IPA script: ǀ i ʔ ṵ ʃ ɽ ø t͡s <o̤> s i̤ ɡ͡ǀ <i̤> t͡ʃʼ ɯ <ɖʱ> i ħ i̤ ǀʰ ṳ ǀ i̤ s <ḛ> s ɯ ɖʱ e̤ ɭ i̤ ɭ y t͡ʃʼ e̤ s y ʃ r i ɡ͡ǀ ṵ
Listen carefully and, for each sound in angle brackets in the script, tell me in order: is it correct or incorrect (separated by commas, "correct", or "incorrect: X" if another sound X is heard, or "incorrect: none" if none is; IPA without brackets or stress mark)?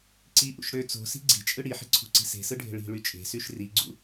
correct, correct, incorrect: ɽ, incorrect: e̤